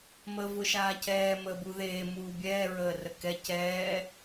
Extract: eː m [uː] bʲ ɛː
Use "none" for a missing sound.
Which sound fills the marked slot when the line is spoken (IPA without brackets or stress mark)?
uː